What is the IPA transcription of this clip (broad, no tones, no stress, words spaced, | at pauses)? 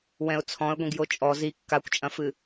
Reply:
wɛ̃ʊ̯t͡sʰɔ̃ə̯ɡʷĩɡ jot͡ʃʼɔ zi kːakʷt͡ʃʼɐ̃fɨ